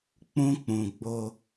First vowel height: high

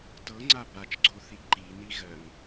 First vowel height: mid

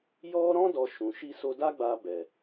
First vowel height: mid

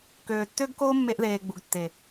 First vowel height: mid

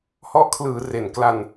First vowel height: mid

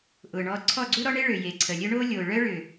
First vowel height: high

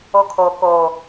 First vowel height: mid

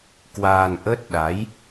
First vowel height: low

